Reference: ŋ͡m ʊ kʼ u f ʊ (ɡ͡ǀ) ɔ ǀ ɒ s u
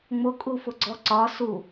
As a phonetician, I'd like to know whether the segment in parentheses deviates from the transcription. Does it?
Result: no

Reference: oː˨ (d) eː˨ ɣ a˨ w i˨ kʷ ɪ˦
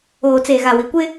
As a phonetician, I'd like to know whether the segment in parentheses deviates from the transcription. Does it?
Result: yes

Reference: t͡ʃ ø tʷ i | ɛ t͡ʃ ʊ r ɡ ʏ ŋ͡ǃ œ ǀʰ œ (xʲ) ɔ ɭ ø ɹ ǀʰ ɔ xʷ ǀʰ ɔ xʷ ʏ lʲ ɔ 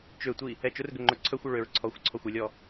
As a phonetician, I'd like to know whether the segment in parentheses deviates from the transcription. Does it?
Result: yes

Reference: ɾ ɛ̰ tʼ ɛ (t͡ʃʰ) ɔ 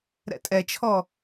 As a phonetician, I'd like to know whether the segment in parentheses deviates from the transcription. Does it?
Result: no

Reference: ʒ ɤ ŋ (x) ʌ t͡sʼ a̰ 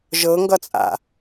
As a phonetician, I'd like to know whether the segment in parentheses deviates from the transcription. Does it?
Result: yes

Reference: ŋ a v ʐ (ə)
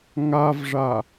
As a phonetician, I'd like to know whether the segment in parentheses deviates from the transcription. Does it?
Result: yes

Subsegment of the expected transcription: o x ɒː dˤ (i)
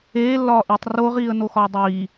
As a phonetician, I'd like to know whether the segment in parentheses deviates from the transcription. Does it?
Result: yes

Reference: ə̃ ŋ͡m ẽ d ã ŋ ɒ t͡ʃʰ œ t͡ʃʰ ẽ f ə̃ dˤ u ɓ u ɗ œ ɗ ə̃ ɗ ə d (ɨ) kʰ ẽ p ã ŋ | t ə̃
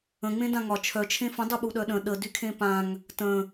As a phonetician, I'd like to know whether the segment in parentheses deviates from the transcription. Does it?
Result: yes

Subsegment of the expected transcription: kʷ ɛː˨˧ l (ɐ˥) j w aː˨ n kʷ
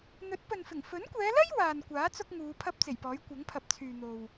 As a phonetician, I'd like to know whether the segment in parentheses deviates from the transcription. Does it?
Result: no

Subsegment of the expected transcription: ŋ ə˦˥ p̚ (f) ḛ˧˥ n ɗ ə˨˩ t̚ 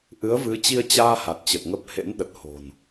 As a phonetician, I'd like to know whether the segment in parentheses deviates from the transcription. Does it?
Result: yes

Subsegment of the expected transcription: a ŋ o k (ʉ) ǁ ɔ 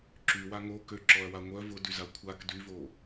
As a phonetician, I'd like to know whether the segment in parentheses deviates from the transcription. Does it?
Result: yes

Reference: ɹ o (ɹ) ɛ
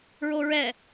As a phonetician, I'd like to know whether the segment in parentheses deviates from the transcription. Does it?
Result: no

